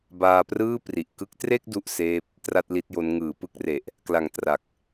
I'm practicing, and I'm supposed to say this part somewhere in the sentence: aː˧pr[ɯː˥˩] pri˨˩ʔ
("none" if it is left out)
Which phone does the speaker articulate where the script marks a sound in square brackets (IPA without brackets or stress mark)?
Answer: ɯː˥˩